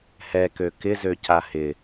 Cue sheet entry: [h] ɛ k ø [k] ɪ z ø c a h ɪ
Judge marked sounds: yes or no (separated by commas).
yes, yes